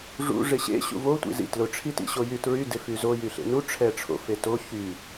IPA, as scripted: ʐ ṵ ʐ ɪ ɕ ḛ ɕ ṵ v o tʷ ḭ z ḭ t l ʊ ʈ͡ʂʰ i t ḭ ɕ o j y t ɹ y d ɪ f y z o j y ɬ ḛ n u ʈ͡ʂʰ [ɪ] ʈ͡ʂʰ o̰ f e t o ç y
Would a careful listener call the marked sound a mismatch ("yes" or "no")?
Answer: yes